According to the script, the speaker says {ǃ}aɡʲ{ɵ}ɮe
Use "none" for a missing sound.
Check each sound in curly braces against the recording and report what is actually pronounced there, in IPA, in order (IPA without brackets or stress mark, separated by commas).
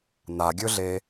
n, ɵ